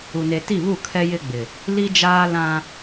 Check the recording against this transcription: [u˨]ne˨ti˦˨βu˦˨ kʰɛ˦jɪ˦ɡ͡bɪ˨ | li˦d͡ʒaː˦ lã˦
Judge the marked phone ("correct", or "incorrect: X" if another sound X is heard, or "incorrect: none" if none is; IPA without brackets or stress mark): correct